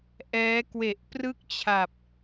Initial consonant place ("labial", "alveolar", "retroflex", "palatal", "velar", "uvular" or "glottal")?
glottal